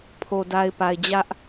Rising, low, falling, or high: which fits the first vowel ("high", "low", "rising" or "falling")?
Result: low